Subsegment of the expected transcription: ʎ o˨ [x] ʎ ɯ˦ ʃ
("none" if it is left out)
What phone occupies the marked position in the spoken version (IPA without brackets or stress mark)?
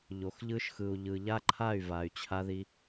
x